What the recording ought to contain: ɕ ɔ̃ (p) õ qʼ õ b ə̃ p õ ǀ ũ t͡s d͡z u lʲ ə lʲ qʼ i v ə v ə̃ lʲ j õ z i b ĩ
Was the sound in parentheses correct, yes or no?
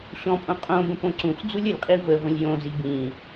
no